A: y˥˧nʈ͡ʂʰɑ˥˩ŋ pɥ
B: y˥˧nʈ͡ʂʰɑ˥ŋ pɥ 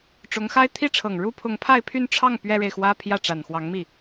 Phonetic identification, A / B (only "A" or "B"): A